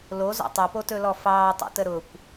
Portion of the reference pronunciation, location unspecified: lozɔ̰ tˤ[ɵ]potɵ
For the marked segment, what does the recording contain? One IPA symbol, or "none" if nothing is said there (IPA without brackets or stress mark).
ɵ